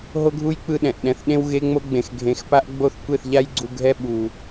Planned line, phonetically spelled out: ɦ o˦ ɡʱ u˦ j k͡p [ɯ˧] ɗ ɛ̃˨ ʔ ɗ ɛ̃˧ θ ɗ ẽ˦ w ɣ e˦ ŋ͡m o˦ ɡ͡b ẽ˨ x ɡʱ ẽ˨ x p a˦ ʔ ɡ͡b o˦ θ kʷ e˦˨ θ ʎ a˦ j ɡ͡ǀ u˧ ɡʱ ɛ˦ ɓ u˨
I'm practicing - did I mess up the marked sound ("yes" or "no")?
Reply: no